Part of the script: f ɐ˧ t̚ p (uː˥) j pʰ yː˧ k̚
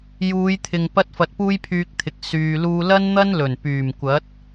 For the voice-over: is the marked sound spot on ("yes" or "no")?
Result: yes